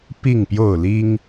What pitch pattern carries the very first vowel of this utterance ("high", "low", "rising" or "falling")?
falling